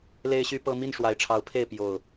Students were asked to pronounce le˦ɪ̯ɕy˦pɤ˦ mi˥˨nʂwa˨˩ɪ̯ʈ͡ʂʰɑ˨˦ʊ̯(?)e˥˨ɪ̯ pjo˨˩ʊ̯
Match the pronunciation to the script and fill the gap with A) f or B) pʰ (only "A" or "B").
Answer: B